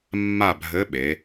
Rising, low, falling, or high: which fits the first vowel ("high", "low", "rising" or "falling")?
falling